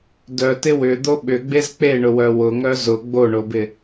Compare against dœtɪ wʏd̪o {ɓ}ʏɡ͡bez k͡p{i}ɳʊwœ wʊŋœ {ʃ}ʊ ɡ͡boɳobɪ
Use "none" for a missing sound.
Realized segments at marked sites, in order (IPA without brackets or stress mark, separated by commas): ɓ, e, z